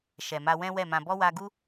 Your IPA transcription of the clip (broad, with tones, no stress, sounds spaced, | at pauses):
ʃ ɛ˨ m a˧ w ɛ̃˦ w ɛ˦˨ m ã˧ b ɔ˦ w a˧ ɡ u˦